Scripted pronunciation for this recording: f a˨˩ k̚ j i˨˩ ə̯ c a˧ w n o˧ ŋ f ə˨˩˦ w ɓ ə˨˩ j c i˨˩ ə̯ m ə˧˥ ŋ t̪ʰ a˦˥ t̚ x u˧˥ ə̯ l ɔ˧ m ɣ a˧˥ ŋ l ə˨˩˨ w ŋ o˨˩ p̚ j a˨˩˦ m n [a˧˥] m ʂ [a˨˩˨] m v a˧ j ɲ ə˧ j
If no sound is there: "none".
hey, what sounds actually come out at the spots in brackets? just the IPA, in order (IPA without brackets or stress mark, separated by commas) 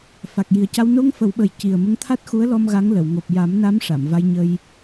a˧˥, a˨˩˨